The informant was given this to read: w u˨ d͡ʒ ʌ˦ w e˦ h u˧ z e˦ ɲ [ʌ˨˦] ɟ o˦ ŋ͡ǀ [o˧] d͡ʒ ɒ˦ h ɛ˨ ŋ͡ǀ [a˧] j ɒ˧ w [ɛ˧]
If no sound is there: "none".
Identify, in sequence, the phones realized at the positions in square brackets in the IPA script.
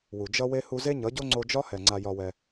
ʌ˨˦, o˧, a˧, ɛ˧

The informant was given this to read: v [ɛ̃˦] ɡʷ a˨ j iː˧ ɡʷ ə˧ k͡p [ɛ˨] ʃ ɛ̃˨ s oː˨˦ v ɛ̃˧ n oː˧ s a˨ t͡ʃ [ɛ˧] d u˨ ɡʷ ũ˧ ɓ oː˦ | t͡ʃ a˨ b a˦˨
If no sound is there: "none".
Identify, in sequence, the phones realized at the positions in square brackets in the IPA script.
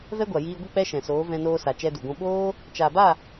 ɛ˦, ɛ˦, ɛ˧

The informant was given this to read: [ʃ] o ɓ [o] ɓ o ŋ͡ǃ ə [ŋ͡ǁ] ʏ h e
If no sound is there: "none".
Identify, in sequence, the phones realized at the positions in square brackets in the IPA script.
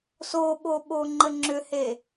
s, o, ŋ͡ǁ

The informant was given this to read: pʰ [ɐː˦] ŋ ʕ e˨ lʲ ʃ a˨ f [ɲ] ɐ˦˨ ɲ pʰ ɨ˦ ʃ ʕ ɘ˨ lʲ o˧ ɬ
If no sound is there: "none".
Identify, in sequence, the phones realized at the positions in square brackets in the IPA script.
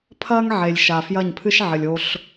ɐː˦, j

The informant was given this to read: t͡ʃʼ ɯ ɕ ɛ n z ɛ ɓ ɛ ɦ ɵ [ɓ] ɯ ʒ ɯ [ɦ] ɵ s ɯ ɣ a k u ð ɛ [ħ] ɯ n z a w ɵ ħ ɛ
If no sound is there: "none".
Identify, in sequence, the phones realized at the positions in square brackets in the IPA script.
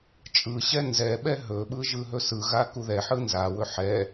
ɓ, ɦ, ħ

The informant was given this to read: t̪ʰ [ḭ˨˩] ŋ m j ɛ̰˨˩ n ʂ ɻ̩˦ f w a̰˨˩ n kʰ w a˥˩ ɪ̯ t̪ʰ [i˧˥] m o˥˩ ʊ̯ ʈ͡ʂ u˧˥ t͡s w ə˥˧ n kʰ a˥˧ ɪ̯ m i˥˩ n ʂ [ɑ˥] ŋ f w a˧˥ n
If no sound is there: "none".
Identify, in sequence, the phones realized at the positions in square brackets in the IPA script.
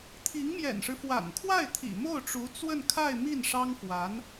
i˧˥, ḭ˨˩, ɑ˥

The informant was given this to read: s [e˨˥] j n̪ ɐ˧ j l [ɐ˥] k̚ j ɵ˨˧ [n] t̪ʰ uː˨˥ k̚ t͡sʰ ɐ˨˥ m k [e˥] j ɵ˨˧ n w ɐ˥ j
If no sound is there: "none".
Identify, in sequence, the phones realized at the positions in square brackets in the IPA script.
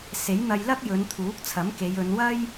e˨˥, ɐ˥, n, e˨˧

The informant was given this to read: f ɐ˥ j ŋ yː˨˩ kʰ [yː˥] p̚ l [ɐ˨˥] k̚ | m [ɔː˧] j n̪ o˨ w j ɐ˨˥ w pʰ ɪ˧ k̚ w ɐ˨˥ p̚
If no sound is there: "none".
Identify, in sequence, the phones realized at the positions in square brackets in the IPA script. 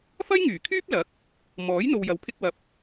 yː˥, ɐ˨˥, ɔː˨˥

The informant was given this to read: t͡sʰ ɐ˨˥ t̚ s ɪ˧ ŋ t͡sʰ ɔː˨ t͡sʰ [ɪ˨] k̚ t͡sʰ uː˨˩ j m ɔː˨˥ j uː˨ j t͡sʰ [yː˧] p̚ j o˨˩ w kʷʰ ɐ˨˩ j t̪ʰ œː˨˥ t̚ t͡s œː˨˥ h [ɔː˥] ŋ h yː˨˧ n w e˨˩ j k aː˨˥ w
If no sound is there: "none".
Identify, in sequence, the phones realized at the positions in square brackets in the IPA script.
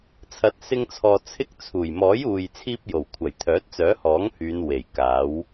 ɪ˥, iː˧, ɔː˨˥

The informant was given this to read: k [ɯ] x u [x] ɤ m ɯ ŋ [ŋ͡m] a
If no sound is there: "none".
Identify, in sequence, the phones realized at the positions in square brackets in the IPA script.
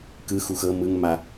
ɯ, x, m

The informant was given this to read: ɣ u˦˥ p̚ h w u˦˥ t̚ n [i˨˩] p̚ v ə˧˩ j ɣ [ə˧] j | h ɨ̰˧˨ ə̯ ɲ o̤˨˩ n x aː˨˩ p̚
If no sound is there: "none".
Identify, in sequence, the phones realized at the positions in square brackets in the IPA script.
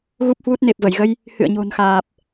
e˨˩, ə˧

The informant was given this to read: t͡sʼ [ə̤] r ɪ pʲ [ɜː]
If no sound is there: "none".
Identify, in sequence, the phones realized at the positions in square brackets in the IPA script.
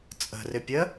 ə̤, ɜ

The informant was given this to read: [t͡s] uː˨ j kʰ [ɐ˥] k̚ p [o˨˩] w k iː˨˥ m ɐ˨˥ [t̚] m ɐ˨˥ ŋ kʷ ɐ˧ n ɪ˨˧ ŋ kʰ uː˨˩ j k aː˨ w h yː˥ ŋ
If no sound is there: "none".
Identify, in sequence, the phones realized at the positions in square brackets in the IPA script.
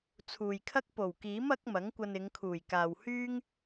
t͡sʰ, ɐ˥, o˨˩, k̚

